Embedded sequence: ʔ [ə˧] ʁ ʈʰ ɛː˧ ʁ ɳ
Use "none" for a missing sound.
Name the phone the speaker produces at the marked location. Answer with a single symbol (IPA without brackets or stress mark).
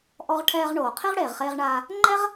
ɔ˧